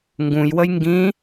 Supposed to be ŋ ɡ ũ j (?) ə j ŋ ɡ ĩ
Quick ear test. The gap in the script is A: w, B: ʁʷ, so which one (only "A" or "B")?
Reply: A